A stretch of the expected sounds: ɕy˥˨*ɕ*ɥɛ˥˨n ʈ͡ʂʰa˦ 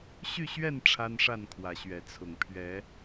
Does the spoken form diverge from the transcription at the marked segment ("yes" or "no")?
no